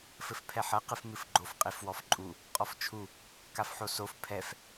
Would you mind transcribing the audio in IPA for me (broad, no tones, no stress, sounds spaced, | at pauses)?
f ɘ f pʰ ɛ ħ ɐ q ɨ f m ɨ f ɡ͡ǃ o f qʼ e f w ɔ f ǃʼ u | qʼ ɔ f t͡ʃʰ u | k a f ħ o s o f pʰ ɛ f